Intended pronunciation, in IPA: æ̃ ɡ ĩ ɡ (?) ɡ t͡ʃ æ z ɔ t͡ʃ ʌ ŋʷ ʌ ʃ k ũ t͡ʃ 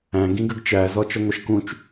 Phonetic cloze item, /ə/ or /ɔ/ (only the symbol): ə